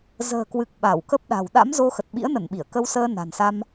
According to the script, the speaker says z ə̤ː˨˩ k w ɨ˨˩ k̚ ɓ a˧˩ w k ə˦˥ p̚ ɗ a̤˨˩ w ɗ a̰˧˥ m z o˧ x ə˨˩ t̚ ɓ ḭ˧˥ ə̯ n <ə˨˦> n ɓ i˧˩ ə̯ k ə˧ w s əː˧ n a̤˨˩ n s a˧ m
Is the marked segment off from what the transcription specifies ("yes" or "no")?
yes